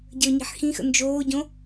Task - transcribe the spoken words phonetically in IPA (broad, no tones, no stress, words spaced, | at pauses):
ɟəʊ̯ɲi̤ħxĩxə̰ nd͡ʒoːɟõ